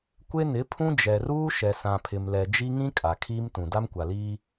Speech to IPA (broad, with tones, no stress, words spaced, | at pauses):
kʷe˦nɪ˨˦pʰũ˦ d͡ʒɛ˨ruː˦ ʃɛ˨sã˨pʰɪ˨mlɛ˨ d͡ʒi˦ŋĩ˦ kʼa˨kʰiː˦mtũ˨ da˦mkʷa˨liː˦